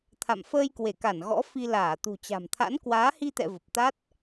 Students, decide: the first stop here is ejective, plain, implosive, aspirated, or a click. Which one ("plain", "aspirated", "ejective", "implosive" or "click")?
aspirated